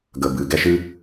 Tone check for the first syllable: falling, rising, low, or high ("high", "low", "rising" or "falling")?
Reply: low